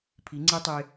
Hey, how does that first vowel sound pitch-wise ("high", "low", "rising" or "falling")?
rising